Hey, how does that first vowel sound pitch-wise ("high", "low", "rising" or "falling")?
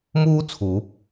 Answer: high